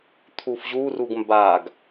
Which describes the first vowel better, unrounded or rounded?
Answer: rounded